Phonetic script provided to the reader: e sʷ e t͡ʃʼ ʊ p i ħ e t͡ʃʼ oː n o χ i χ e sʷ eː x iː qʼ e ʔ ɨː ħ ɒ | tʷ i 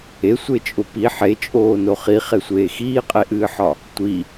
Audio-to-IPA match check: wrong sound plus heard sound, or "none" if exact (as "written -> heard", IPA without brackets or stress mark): none